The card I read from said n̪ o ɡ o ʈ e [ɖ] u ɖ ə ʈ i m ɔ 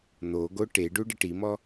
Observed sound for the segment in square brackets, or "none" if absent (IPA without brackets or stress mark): ɖ